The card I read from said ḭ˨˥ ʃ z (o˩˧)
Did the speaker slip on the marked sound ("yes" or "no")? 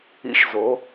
no